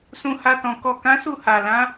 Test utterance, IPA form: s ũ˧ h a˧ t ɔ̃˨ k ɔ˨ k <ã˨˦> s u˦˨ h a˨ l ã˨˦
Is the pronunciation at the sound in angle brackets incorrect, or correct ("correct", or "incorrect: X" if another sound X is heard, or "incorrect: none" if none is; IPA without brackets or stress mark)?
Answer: correct